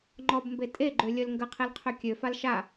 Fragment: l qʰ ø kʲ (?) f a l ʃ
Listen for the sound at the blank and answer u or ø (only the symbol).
ø